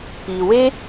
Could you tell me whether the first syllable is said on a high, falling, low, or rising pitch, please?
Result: low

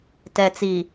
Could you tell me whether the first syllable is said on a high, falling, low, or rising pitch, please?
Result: low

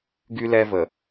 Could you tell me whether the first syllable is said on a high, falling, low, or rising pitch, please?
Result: high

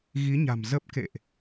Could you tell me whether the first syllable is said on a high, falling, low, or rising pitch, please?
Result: rising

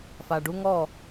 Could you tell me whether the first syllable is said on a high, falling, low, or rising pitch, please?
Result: low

